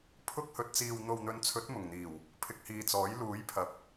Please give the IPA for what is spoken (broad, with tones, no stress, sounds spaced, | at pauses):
pʰ ʊ˧ k̚ h ɵ˨ t̚ t͡s iː˨ w n̪ o˨ w n̪ ɵ˨˧ n t͡sʰ ɵ˨˥ t̚ m ʊ˨˩ ŋ n̪ iː˨˩ w | pʰ ɪ˨ k̚ h iː˨ t͡s ɔː˨˥ j l uː˨˥ j pʰ ɐ˨˥ p̚